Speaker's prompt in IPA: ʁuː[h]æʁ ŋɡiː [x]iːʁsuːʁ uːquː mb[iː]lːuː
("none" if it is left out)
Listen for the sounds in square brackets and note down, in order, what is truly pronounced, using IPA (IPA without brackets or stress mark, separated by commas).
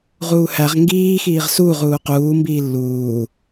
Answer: h, x, iː